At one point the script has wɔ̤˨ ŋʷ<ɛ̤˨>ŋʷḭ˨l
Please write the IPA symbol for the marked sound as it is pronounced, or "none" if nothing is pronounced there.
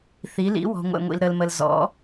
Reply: ɛ̰˨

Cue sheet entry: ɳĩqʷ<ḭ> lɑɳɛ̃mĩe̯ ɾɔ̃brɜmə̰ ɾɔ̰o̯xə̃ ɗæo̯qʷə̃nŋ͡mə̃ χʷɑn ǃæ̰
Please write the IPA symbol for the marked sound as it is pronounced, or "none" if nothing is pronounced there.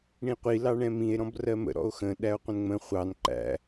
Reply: i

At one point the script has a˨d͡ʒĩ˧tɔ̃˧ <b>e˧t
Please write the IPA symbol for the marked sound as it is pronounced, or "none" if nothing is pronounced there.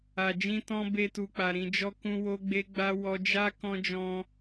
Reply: b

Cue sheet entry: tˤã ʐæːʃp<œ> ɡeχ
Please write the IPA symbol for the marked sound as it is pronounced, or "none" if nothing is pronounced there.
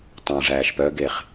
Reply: œ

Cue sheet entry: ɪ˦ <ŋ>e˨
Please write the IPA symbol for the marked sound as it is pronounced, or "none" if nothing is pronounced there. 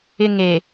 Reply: ŋ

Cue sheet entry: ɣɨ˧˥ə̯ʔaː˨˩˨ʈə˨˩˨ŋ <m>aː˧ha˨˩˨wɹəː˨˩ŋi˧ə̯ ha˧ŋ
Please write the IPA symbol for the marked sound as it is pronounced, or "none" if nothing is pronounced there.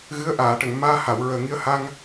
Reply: m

